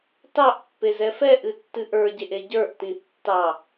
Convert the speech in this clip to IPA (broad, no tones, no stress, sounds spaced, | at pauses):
t ɑ ʔ pː e z ɛ f ɛ ʔ ɨ tː ɨ ʔ ə˞ ɟ e ʔ e ɟ ə˞ ʔ t ĩ tː ɑ